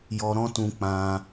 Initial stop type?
plain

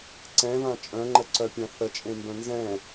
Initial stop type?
click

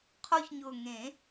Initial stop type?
aspirated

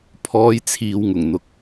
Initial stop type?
aspirated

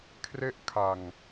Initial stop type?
aspirated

